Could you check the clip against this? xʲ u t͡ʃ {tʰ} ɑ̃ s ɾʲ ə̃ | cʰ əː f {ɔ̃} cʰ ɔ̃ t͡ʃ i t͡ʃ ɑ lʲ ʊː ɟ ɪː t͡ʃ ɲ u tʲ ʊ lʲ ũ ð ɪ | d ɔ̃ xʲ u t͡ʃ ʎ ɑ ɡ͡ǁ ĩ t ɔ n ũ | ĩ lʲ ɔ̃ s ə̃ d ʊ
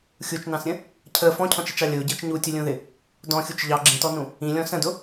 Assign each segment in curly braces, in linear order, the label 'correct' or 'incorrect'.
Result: incorrect, correct

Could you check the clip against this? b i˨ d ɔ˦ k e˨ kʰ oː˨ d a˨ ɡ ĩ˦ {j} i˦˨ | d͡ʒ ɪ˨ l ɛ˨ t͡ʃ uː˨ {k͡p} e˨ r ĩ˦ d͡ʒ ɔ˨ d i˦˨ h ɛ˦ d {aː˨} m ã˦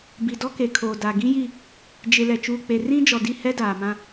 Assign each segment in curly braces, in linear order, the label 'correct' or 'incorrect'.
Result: correct, correct, correct

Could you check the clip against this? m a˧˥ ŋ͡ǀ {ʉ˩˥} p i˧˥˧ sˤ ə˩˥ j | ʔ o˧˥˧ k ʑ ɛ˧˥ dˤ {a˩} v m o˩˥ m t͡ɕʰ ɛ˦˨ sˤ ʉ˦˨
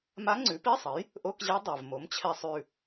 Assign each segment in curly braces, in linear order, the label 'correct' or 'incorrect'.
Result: correct, correct

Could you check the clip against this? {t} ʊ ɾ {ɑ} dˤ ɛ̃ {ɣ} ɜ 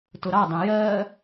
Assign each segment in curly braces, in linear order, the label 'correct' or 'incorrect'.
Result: correct, correct, incorrect

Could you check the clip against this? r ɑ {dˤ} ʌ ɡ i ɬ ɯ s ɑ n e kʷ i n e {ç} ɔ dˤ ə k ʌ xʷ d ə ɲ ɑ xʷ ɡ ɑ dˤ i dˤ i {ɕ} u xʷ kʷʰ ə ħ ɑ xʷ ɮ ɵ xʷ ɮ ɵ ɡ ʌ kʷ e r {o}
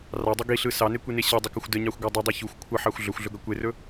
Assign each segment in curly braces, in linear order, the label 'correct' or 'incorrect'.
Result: correct, incorrect, incorrect, incorrect

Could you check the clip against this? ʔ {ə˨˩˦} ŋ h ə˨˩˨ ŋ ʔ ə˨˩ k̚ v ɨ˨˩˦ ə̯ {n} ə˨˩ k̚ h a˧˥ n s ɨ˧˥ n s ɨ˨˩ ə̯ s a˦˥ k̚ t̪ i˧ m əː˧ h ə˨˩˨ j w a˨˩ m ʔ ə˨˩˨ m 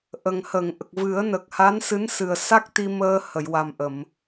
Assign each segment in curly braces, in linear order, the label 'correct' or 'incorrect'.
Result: incorrect, correct

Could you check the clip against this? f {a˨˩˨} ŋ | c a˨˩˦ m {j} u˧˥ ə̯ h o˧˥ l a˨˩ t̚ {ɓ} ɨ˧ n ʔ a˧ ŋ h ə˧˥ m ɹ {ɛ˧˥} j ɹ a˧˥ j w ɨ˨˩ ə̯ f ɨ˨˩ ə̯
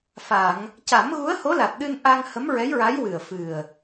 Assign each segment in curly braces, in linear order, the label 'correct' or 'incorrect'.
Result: correct, incorrect, incorrect, correct

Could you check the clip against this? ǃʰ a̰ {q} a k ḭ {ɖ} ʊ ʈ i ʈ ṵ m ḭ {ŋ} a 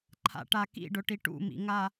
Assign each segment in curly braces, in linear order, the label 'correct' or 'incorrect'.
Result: incorrect, correct, correct

